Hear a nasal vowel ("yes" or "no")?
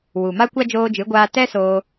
no